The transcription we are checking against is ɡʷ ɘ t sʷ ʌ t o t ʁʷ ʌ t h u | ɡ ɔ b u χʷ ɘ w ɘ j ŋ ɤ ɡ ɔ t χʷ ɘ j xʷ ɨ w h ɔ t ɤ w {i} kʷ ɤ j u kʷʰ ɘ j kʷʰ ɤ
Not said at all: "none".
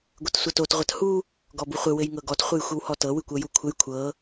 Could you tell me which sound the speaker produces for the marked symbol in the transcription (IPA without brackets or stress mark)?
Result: ɨ